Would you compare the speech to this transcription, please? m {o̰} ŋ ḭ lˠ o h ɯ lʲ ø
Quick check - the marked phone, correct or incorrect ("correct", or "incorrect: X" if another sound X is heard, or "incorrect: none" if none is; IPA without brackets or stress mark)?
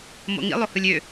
correct